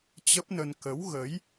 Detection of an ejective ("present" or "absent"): absent